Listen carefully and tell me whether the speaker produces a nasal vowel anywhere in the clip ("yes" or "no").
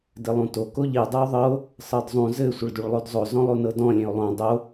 yes